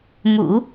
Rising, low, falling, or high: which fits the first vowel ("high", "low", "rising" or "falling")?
low